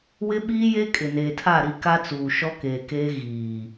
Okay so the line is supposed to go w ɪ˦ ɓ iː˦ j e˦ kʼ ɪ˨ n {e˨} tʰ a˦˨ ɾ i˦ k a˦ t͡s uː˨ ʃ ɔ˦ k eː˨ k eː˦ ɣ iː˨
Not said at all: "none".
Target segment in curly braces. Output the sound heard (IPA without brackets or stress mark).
eː˨